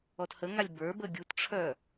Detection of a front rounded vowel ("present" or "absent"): present